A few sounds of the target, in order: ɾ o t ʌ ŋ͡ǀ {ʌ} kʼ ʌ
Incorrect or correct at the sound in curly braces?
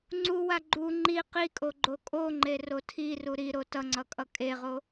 correct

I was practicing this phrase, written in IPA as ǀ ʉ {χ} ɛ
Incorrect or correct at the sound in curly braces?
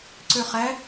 correct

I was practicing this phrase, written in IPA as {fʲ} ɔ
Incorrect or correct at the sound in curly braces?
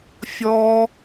correct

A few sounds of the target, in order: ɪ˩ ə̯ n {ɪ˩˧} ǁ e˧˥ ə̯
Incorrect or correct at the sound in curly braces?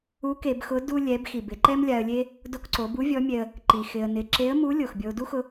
correct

